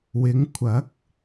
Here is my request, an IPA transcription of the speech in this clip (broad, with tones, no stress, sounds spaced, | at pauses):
w ɪ˨˧ ŋ kʷʰ ɐ˨˥ k̚